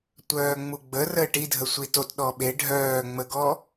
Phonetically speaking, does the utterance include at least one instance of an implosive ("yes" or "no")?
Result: yes